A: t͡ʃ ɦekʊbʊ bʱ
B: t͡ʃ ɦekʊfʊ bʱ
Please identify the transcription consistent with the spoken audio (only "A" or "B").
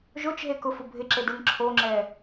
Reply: B